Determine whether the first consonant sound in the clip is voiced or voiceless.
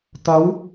voiceless